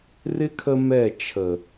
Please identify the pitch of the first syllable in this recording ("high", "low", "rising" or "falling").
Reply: high